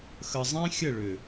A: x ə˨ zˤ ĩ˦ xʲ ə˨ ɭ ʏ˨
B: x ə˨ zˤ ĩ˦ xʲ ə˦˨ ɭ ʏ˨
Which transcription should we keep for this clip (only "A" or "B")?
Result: B